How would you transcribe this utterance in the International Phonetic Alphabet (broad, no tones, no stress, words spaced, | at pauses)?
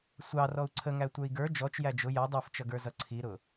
sʷɑ rɔu̯ǀʰəŋæ tʷə˞i̯ɡə˞ d͡ʒɔt͡ʃjæ d͡ʒʊ jʌ dˤə˞ft͡ʃʌɡə˞ zʌǀʰiɾʊ